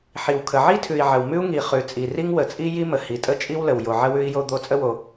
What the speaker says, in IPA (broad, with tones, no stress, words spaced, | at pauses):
ħi˩wkʰə˩ ʕi˥tʰʉ˩i̯ ʕə˩wmʉ˥u̯ŋi˩ χʉ˩t͡sʼi˩ ri˥ŋwə˩t͡sʼi˥ ji˥mə˩ hi˩tʼə˥t͡ʃʼi˥wlə˩w jo˩ʕə˥ wʉ˥i̯jo˥d̪o˥ t͡sʼə˥wo˩